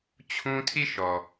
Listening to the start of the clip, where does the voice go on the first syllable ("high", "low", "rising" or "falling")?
high